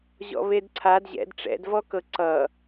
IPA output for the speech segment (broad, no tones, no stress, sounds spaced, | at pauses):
ʑ ɔ̰ β e d ǀʰ a d ʑ ɛ̰ d ʈ͡ʂ ɛ̰ d v ɔ k ɤ ǀ ʌ